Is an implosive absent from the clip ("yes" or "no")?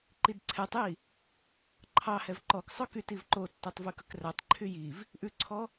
yes